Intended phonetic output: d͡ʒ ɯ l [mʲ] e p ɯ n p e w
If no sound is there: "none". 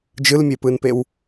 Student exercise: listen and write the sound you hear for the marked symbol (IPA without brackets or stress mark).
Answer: mʲ